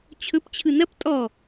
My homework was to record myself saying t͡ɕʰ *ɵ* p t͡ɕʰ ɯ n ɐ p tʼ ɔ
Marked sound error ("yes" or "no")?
no